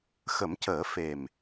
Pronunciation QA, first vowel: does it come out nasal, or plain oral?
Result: oral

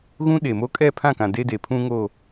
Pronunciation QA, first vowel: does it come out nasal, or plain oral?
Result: nasal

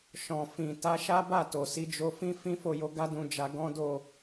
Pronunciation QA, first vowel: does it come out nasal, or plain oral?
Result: nasal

